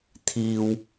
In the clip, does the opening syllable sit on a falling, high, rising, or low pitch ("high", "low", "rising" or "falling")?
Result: high